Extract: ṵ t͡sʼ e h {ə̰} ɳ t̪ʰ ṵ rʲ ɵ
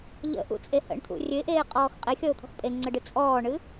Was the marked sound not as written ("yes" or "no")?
no